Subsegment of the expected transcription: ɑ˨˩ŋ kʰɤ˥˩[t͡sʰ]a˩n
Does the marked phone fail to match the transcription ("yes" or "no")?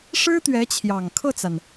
yes